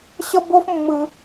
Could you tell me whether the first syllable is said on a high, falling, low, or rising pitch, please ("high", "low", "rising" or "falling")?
high